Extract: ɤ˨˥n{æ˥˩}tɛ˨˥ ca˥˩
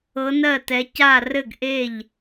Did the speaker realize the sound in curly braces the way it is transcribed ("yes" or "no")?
no